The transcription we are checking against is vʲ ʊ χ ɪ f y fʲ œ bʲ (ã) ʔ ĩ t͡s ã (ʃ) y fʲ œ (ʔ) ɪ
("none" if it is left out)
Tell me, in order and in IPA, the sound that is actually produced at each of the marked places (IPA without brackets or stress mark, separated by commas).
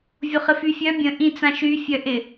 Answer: ə̃, ʃ, ʔ